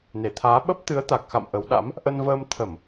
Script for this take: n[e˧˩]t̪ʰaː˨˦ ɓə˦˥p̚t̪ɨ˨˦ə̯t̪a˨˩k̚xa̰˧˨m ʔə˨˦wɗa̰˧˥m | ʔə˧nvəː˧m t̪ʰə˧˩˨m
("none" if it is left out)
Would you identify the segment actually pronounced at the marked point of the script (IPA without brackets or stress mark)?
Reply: e˧˩